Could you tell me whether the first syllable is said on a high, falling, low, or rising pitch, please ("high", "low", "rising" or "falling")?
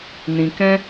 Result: low